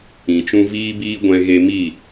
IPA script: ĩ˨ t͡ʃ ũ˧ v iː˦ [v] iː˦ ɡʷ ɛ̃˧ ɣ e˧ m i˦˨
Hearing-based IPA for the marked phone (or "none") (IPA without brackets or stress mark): b